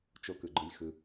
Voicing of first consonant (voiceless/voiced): voiceless